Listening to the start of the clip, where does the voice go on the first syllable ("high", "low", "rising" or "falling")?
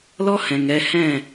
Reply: high